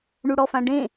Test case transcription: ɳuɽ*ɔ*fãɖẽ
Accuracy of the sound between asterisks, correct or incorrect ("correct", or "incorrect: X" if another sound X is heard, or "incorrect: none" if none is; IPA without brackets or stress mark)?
correct